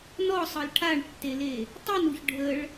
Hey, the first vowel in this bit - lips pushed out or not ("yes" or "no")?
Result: yes